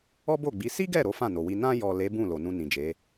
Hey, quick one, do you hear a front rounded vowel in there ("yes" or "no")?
no